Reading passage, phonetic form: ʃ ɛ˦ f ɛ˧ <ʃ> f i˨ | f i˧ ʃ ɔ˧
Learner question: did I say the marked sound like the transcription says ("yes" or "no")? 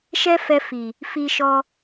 no